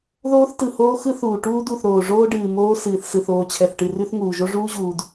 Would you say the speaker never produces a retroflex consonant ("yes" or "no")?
no